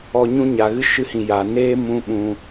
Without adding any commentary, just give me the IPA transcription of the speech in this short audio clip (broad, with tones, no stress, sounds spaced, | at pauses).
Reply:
ɔ˧ ɲ ũ˦ ɲ a˨ ɣ ɨ˦ ʃ ɨ˧ h ĩ˨ j a˨ n eː˦ m ũ˧ ɓ ũ˧